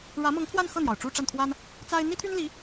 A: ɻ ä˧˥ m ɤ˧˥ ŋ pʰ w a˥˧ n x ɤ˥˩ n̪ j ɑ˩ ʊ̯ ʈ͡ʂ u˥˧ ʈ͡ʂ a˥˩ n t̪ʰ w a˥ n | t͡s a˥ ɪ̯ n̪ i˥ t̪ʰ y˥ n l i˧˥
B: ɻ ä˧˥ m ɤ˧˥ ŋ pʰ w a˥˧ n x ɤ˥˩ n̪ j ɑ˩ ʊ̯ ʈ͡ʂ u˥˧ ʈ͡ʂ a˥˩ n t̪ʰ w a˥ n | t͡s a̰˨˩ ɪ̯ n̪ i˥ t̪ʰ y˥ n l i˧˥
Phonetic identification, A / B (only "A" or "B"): A